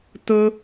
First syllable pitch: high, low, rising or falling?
high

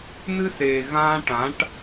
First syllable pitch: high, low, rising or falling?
high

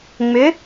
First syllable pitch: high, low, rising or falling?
rising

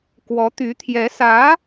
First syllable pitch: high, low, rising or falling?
rising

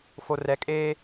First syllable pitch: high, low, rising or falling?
low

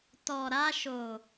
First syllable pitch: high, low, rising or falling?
low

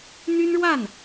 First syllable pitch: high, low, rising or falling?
high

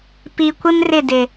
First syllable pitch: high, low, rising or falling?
low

